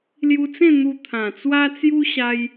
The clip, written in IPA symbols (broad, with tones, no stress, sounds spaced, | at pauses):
l j u˧ t͡s ẽ˥˧ n̪ u˧ t̪ʰ ã˨˩ t͡s w a˦ t͡s j u˦ ɕ a˦ j